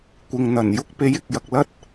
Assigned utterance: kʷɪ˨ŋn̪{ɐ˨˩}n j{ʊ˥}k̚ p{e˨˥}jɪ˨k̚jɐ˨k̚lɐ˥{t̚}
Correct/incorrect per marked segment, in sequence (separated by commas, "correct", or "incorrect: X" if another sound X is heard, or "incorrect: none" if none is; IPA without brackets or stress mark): correct, correct, correct, correct